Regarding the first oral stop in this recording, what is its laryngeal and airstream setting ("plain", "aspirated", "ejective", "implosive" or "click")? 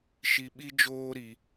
implosive